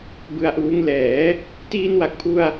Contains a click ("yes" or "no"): no